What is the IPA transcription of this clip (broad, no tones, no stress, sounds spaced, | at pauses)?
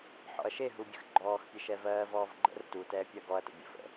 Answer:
ħ ɔ̰ ɐ̯ ʃ e ɦ u bʲ ə̰ x ɡ͡ǃ ɔː x pʲ e ʃ ɛ v ɜː v ɔː v ɡ͡ǃ ə̰ r t u t ɛː pʲ ɜ ɡ ɔ ɐ̯ t ə̰ bʲ ə̰ f ə̰